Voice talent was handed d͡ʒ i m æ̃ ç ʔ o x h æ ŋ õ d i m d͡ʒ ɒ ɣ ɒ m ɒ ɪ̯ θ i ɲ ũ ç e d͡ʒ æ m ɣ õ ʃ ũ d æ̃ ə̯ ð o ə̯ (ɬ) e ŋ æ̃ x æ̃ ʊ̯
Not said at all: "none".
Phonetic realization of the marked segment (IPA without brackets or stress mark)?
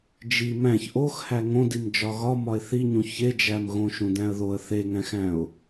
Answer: θ